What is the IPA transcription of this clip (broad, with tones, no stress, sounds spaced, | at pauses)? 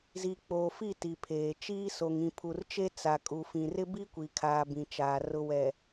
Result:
z i˨ k͡p oː˨ f i˦˨ t i˨ pʰ eː˨ t͡ʃ iː˦ s o˨ ŋ ĩ˨ pʰ u˨ r t͡ʃ e˦ t͡s a˨ kʼ u˨ f ĩ˨ r ɪ˦ b i˦ kʷ i˨ kʰ aː˨ b ĩ˨ t͡ʃ aː˨ r ʊ˦ w ɛ˨